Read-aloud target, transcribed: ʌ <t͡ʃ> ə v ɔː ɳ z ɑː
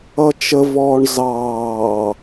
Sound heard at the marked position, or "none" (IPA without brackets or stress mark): t͡ʃ